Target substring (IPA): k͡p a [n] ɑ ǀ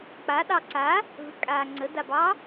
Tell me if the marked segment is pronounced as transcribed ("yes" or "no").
no